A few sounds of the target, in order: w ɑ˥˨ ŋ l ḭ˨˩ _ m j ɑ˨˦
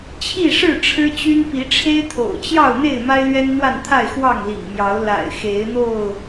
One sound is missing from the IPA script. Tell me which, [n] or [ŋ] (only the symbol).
ŋ